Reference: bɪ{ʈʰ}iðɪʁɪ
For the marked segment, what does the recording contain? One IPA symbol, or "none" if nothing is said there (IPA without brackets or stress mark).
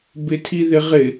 tʰ